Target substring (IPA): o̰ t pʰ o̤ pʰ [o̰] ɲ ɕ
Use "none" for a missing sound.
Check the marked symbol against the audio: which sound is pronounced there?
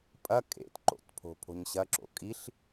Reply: o̤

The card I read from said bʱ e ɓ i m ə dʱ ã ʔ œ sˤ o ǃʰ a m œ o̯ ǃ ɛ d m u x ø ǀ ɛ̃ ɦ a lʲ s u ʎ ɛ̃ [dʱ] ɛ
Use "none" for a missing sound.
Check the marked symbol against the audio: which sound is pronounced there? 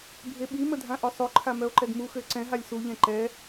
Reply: ǃ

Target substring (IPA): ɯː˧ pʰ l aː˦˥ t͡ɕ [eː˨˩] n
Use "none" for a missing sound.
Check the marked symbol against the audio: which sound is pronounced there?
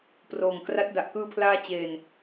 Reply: eː˧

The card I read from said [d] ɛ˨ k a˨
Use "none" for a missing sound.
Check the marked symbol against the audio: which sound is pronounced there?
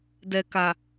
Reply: d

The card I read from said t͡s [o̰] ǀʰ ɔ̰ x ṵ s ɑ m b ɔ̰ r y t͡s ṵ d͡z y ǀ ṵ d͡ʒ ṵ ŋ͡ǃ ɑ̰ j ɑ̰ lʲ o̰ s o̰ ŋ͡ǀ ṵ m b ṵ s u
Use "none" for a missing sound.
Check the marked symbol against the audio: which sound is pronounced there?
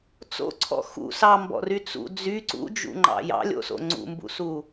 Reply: o̰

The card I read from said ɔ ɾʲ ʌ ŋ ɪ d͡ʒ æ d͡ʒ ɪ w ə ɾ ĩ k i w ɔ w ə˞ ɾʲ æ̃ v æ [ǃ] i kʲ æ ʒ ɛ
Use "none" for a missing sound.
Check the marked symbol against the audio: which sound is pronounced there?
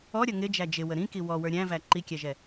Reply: ǃ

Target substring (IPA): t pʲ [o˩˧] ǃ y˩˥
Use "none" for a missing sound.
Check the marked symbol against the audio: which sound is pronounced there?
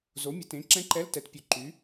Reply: o˩˧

